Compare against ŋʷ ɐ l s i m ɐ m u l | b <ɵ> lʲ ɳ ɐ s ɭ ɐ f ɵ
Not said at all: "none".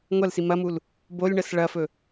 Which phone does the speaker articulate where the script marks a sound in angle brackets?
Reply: o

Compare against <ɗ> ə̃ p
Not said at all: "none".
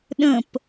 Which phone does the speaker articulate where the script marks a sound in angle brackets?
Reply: ɗ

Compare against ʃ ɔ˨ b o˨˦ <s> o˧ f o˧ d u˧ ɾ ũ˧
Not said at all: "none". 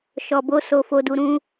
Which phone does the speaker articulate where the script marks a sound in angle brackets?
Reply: s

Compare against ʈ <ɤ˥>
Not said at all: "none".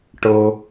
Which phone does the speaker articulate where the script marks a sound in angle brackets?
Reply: ɤ˩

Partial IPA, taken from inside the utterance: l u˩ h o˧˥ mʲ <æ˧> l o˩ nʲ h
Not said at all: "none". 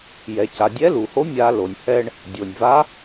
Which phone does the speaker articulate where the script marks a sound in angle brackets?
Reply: a˧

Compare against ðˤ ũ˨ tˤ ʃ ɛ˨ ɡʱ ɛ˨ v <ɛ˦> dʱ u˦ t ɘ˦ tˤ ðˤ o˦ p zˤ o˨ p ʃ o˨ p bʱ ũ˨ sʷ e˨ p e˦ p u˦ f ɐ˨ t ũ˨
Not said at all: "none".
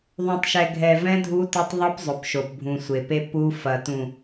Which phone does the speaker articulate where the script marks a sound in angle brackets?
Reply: ɛ̃˦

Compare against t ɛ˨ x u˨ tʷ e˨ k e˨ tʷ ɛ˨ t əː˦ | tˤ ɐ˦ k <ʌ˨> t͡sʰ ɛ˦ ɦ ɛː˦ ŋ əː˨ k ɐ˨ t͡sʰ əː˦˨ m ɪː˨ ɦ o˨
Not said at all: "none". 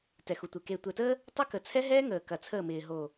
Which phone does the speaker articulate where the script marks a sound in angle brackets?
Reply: ə˨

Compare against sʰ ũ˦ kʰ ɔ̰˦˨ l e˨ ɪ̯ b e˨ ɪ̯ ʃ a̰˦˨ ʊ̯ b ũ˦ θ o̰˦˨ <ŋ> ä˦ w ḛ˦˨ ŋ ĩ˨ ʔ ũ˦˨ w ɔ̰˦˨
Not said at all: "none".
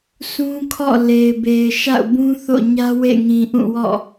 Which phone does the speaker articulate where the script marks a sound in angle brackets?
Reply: ɲ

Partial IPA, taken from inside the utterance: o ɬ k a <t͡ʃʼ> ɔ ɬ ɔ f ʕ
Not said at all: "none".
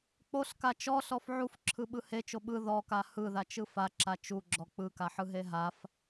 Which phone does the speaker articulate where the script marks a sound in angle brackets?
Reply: t͡ʃ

